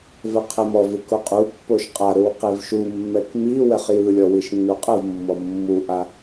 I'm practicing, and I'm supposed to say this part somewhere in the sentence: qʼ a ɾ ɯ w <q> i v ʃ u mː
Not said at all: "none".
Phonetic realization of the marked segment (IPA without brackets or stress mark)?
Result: q